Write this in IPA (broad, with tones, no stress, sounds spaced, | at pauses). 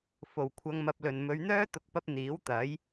f o˨˩ w kʷʰ ɐ˧ ŋ m ɐ˧ p̚ l ɵ˨ n m ɵ˨˧ ɥ n̪ œː˥ t̪ ʊ˨ k̚ p ɐ˧ p̚ n̪ iː˨˥ w t̪ ɐ˨˥ j